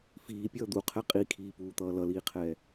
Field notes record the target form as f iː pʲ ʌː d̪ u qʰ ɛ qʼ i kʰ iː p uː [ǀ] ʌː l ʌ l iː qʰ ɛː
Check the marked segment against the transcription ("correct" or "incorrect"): incorrect